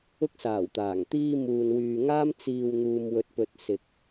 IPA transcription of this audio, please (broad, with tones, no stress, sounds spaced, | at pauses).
ʊ˧ k̚ s aː˨˩ w t̪ aː˨˩ ŋ t̪ iː˧ m uː˨ n w yː˨ ŋ aː˥ m t͡s iː˧ w n̪ uː˨ m w ɵ˨ t̚ p ɵ˨ t̚ s ɪ˨ k̚